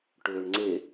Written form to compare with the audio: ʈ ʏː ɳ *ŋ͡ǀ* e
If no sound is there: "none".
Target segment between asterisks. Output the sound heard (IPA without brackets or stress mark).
ŋ͡ǀ